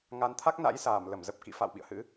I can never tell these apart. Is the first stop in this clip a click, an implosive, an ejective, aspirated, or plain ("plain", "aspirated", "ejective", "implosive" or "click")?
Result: aspirated